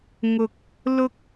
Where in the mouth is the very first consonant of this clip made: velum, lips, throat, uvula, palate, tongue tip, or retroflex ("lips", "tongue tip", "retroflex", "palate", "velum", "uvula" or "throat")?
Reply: velum